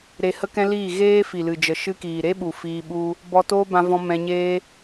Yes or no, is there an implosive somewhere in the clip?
yes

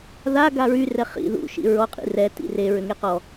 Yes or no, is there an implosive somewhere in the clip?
no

